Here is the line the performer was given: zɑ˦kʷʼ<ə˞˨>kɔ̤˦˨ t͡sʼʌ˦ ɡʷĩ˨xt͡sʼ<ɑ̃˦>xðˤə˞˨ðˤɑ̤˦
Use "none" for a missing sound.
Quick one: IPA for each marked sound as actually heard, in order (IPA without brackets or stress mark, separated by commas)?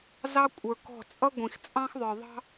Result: ə˞˨, ɑ̃˦